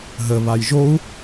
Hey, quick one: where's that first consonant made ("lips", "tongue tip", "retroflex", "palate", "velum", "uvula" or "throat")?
throat